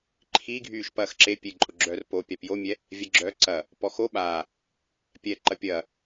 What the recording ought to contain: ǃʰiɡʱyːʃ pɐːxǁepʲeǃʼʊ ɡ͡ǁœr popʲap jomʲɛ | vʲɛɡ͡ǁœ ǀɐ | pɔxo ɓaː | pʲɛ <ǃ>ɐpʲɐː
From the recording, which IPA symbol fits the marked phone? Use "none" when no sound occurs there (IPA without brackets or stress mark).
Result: ǃ